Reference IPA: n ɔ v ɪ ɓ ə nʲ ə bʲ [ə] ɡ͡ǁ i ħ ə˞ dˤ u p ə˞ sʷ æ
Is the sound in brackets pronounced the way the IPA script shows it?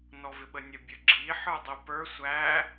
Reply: yes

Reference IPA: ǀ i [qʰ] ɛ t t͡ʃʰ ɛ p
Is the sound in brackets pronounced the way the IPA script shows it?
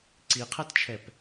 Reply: yes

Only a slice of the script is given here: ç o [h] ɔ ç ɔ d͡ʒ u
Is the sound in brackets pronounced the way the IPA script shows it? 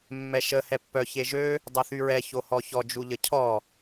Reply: yes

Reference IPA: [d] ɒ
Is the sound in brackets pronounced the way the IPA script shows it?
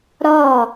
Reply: no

